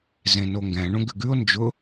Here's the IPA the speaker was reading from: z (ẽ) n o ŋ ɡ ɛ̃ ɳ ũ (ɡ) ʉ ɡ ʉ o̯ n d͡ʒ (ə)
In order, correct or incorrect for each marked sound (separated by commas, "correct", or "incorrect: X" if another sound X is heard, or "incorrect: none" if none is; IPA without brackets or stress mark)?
correct, correct, incorrect: ʊ